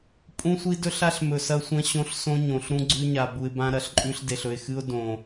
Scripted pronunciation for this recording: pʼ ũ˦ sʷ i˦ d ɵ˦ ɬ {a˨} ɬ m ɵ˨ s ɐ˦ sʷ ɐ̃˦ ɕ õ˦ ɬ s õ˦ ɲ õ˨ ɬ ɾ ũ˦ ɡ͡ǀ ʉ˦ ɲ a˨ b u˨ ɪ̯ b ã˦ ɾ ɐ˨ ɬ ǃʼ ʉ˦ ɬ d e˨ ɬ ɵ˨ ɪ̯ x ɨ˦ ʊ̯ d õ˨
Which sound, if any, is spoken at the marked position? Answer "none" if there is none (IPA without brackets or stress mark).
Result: a˦